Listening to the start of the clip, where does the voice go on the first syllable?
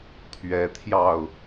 rising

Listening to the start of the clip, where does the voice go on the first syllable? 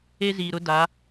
high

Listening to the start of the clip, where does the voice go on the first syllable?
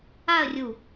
falling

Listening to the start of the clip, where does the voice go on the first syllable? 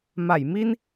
low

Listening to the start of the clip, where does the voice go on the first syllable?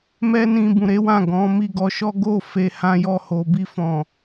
high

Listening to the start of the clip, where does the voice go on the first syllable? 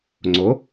rising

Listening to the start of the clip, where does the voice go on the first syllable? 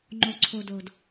low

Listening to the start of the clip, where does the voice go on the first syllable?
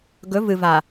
rising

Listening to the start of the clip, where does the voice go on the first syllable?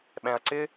low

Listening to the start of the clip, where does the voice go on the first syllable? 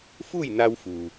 falling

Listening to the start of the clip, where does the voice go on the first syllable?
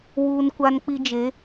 high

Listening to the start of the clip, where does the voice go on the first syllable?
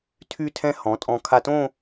falling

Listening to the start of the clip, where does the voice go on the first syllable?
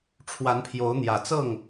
rising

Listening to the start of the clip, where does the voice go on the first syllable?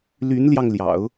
rising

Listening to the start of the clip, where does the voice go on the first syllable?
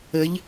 rising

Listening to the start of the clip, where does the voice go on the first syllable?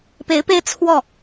rising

